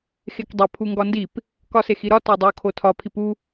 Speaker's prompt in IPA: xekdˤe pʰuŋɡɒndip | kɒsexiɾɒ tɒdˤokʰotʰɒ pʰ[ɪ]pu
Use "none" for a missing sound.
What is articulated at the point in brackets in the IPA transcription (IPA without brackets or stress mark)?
i